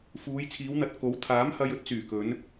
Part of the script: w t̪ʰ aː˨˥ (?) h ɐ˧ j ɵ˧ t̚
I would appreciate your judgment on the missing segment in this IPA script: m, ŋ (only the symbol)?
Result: m